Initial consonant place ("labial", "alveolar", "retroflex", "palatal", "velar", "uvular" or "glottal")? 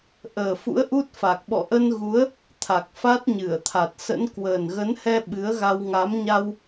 glottal